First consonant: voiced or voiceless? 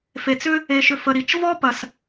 voiceless